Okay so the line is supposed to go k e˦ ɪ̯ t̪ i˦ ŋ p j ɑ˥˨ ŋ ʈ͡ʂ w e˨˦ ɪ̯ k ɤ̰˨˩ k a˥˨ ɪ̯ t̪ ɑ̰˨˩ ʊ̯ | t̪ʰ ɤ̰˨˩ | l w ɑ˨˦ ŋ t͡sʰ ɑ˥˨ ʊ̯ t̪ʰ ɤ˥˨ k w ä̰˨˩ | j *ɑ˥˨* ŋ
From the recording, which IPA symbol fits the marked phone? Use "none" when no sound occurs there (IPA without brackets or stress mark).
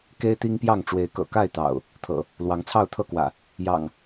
ɑ̰˨˩